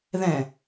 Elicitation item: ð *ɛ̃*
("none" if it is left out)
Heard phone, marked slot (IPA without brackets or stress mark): ɛ̃